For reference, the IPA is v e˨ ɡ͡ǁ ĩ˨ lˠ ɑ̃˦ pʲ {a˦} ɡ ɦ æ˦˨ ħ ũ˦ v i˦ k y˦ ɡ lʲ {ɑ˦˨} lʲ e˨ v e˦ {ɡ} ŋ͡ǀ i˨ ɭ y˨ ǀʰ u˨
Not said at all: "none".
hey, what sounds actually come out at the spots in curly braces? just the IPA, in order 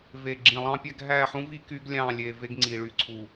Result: æ˦, ɑ̃˦˨, ɡ

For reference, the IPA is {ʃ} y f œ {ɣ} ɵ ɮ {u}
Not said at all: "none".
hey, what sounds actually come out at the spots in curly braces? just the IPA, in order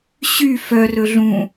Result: ɕ, r, ũ

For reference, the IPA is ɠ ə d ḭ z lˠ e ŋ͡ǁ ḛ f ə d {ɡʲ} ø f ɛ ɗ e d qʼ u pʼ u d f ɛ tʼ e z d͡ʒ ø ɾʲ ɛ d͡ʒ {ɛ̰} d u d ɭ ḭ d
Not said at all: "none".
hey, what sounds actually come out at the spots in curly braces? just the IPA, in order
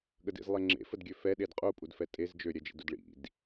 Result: ɡʲ, ḛ

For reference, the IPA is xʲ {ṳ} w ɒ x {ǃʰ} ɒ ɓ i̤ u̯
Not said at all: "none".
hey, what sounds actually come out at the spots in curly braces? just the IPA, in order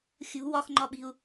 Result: ṳ, ŋ͡ǃ

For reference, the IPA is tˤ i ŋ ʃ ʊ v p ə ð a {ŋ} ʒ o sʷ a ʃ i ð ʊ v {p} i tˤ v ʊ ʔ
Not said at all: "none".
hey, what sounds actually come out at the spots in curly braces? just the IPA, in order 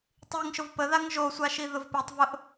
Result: ŋ, p

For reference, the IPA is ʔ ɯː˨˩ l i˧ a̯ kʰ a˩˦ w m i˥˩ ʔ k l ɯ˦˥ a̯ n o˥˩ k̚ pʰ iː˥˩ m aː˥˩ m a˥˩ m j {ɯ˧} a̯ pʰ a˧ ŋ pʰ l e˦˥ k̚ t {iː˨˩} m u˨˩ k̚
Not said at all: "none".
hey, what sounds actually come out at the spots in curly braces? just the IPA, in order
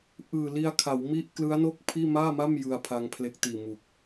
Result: ɯ˧, iː˨˩

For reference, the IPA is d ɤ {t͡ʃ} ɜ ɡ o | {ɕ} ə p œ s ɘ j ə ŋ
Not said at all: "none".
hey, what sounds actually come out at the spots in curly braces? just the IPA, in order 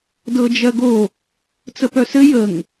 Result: d͡ʒ, t͡s

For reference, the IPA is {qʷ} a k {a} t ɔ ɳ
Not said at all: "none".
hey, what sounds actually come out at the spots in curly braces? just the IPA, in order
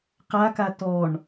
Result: q, a

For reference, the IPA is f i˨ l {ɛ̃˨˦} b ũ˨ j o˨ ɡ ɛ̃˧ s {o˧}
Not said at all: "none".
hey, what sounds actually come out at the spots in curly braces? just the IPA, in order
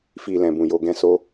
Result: ɛ̃˨, o˧

